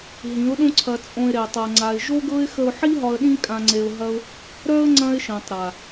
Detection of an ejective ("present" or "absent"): present